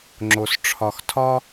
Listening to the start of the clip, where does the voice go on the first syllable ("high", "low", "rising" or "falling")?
low